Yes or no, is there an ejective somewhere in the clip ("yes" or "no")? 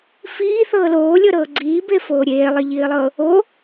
no